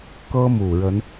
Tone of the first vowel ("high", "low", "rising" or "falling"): high